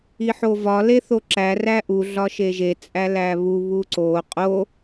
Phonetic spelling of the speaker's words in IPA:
i ħ o v ɒ l e θ o ǁ æ r æ ʔ u ɮ ɒ ʃ e ʒ e t͡sʼ æ l æ β u β u ǀ o qʼ o

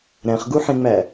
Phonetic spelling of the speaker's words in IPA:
ɾ æ̃ χ ɡ u ħ ẽ ŋ͡m æ

